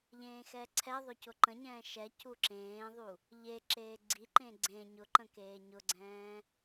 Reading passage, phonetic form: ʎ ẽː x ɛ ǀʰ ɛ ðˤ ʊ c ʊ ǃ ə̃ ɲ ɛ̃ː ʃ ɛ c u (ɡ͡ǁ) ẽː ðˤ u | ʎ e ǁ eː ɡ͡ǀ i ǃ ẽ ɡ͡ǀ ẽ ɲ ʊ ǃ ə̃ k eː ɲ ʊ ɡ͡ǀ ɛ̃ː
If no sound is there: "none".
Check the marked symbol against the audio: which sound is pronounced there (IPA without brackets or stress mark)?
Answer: ǁ